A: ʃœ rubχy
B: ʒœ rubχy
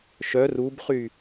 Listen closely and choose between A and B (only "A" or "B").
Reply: A